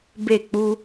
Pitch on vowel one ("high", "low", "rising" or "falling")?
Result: falling